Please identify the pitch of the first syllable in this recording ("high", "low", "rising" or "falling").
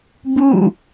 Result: falling